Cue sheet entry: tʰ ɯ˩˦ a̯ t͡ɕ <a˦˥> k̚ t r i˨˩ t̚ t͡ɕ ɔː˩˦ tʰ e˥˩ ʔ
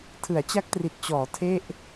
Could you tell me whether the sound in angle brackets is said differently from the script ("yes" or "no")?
no